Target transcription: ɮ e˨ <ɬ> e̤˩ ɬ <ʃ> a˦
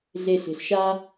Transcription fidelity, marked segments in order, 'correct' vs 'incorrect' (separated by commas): correct, correct